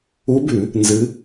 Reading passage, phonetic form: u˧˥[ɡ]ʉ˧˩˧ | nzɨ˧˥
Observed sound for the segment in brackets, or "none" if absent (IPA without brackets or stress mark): b